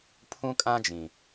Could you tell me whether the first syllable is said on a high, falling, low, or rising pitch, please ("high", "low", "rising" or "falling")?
high